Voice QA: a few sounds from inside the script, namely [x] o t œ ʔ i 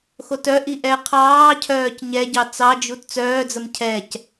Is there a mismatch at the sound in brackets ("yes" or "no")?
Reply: no